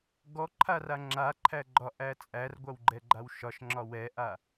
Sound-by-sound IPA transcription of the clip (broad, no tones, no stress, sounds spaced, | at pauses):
ɡ ɔ ǃʰ a r a ŋ͡ǁ a ǃʰ æ ɡ͡ǃ ɒ ʔ æ t͡sʼ æ r ɡʷ a w ɡ͡ǃ ɛ ɡ͡ǃ a w ʃ ɒ ʃ ŋ͡ǁ ɒ w ɛ ʔ a